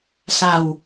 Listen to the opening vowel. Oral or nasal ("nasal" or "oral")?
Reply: oral